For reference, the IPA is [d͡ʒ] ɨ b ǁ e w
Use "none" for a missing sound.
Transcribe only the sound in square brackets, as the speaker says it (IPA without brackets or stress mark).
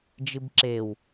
d͡ʒ